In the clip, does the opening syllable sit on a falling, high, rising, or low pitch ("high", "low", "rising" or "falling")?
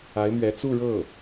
rising